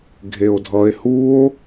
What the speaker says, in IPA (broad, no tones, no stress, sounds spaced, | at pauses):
ɡʱ e o̯ dʱ ʌ e̯ h u o̯